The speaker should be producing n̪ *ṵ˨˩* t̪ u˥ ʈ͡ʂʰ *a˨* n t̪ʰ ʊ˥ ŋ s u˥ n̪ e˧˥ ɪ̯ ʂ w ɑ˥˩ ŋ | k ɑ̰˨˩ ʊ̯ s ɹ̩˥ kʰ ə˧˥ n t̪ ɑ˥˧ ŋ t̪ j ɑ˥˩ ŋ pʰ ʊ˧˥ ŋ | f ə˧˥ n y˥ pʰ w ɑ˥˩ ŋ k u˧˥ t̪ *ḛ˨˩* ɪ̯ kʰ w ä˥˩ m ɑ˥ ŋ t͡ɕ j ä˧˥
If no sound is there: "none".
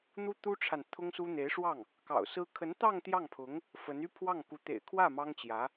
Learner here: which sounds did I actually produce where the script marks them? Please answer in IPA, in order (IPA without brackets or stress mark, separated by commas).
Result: u˥, a˨, ḛ˨˩